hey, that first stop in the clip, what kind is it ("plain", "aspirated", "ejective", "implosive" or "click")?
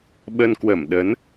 implosive